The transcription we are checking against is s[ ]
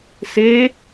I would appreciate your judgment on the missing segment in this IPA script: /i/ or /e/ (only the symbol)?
e